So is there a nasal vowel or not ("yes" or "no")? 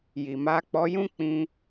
yes